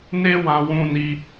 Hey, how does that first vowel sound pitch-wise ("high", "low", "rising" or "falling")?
high